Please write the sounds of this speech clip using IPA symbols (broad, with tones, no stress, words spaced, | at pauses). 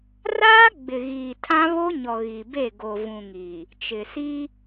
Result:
raː˦ ɡ͡bɪ˨ɣiː˨tʰã˦ βo˦ɲɔ˨ ɣi˨be˦˨ ɡo˨vũ˨ ŋiː˨ | t͡ʃɪ˨ siː˦